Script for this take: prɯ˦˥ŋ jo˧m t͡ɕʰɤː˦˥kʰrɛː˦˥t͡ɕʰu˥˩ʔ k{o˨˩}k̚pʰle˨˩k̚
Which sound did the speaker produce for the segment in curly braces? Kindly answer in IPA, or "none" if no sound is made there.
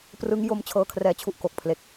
o˨˩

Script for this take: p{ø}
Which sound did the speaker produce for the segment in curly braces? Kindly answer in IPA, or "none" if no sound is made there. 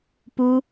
u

